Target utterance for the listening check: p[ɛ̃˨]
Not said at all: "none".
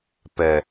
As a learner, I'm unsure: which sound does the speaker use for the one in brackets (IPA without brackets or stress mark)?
ɛ˨